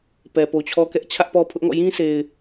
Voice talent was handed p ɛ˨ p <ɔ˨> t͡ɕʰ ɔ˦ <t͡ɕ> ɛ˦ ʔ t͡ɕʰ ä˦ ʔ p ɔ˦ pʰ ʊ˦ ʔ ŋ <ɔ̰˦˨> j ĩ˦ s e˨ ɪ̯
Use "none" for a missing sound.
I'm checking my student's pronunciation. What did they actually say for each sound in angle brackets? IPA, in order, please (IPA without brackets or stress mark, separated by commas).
o˨, k, ɔ̰˦˨